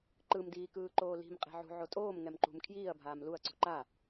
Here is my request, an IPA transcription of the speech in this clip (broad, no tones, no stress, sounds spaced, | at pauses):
ǃ ɯ m d iː k ɯː ǃ oː l i̤ m qʼ e̤ ʕ ṳ ʕ o tʼ oː m ŋ ɛ m ǃ ṳ m kʰ j iː ɐ̯ bʱ aː m l u ɐ̯ ǀ ṳ ǃ a